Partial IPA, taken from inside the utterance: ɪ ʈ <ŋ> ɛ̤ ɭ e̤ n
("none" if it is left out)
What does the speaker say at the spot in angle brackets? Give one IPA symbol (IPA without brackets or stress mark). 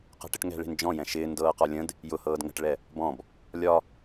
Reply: ŋ